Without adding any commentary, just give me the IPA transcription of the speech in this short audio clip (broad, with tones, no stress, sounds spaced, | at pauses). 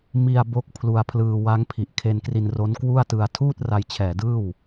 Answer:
m i˧ a̯ b o˥˩ k̚ pʰ l u˧ a̯ pʰ l ɯː˧ w a˦˥ ŋ pʰ i˨˩ ʔ kʰ e˧ n k r i˧ n r o˦˥ n k w u˥˩ a̯ t ɯ˧ a̯ tʰ uː˥˩ t̚ r a˧ j t͡ɕʰ ɛː˨˩ d ɯː˥˩ w